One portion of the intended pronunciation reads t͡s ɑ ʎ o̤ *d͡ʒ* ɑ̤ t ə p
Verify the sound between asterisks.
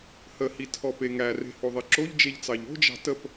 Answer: correct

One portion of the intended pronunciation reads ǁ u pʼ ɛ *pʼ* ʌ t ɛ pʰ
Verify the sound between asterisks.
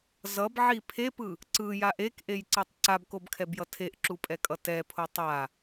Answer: incorrect: kʼ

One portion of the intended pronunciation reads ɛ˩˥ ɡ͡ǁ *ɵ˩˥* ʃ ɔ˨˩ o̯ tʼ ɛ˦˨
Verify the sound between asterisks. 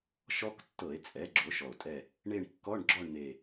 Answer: incorrect: o˩˥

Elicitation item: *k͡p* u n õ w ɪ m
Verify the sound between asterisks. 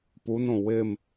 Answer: incorrect: p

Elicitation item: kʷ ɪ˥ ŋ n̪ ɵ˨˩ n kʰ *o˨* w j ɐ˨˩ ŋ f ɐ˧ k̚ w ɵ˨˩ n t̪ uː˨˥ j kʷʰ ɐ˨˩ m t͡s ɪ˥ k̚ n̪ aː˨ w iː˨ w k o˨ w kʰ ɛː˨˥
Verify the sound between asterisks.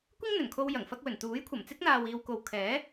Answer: incorrect: o˧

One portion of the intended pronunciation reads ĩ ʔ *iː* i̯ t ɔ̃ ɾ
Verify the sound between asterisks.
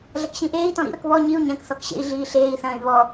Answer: incorrect: eː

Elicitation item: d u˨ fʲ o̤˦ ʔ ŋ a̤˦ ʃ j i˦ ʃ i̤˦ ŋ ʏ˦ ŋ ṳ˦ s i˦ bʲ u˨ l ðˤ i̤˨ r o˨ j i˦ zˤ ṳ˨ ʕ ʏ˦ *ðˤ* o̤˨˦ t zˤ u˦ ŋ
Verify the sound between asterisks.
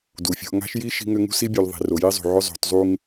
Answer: incorrect: zˤ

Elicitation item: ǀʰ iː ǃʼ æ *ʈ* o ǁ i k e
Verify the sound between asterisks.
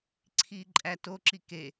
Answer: incorrect: t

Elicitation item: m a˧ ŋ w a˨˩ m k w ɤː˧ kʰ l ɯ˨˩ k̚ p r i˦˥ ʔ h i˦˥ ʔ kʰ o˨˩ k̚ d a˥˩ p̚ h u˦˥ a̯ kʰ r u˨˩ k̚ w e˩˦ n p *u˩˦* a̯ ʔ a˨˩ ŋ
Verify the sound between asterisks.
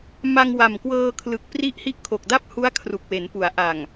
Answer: correct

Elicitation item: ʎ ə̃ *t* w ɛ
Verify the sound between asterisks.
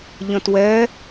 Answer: correct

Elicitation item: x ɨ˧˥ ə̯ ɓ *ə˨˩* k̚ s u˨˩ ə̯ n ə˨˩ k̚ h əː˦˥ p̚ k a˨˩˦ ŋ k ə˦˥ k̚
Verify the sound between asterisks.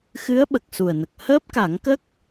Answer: correct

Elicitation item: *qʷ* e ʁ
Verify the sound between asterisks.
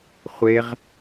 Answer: incorrect: χʷ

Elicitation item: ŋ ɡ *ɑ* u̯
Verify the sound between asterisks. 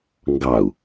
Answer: correct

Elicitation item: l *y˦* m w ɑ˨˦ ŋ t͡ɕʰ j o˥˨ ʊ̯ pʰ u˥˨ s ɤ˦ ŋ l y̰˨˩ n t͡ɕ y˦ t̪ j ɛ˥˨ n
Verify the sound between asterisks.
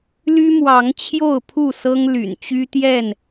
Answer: correct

